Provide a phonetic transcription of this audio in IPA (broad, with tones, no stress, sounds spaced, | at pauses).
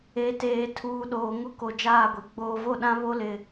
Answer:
e˨˦ t eː˨ tʰ uː˨ ɗ oː˨ ŋ ʊ˦ k o˨ d͡ʒ aː˦˨ ɡʷ e˨ ɡ͡b oː˨ v o˦˨ ɗ ã˦ β o˦ l ɪ˨